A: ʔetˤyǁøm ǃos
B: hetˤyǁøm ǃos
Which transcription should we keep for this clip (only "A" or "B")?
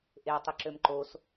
A